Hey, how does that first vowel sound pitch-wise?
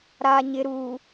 low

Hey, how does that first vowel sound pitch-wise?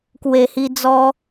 low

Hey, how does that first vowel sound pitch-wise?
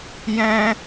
high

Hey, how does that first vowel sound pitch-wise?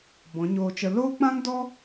rising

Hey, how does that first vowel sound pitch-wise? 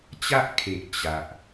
high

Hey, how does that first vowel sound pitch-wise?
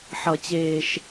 low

